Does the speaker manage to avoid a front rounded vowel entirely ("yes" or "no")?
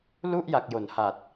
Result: yes